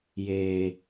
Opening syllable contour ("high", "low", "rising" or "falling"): low